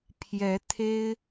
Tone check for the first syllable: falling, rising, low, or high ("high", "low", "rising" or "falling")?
rising